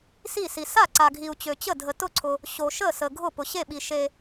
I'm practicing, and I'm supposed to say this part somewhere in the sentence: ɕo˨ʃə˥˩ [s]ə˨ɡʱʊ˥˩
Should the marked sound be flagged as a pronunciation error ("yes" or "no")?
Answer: no